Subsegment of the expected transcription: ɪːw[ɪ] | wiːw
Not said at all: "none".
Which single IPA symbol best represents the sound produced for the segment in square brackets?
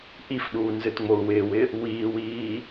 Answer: ɪ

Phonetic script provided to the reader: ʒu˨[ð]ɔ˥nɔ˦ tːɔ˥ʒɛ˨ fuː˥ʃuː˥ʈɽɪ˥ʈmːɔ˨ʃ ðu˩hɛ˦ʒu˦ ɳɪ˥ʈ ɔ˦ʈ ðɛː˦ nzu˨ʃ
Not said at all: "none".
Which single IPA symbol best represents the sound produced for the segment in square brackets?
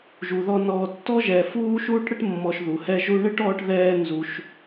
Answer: ð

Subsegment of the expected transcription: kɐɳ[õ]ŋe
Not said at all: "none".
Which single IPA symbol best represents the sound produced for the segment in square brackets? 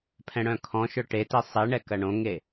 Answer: õ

